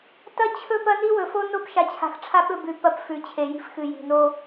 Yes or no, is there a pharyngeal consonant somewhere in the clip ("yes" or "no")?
no